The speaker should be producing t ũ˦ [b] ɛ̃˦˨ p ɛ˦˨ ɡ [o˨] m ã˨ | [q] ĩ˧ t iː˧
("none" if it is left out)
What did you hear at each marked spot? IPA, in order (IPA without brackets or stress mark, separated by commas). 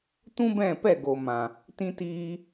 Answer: b, o˨, t